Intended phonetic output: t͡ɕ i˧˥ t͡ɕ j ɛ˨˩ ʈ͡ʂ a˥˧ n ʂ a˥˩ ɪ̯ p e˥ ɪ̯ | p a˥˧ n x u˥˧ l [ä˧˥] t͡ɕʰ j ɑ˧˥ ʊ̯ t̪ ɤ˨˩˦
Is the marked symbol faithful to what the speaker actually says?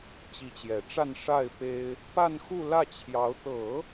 no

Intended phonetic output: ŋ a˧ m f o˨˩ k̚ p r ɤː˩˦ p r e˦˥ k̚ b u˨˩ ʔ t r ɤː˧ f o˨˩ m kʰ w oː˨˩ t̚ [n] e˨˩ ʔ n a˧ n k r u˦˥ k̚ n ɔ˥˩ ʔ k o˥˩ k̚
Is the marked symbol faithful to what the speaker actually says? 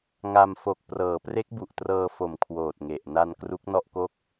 no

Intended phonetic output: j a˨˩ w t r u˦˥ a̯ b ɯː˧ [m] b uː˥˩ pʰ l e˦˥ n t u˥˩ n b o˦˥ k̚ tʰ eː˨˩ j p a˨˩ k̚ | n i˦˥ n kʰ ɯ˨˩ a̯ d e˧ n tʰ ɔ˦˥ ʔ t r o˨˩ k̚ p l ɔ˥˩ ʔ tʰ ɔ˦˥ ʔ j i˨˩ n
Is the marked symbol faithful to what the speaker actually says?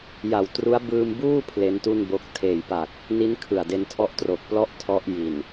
yes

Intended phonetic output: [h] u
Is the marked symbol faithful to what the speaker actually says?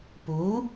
no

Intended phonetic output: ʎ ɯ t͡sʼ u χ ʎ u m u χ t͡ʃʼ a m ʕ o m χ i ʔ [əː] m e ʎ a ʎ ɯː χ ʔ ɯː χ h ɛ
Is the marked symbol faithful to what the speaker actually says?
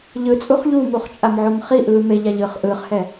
no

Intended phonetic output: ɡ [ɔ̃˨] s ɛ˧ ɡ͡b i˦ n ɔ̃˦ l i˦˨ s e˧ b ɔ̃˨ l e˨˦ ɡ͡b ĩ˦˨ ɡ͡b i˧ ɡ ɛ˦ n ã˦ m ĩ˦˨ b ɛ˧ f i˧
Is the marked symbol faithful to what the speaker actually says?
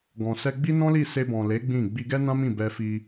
yes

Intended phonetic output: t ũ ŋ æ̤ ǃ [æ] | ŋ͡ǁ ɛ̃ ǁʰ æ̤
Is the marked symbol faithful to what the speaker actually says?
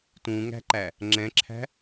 yes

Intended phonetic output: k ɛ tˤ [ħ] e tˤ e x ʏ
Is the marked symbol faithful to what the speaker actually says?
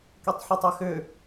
yes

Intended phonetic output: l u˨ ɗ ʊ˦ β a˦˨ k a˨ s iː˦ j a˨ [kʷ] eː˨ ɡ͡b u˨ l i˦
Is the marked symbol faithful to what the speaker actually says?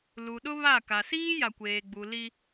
yes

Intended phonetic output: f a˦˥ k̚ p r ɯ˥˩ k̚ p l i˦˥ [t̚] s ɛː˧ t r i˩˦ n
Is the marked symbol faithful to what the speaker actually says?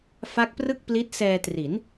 yes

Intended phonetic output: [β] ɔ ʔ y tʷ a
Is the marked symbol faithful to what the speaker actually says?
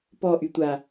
no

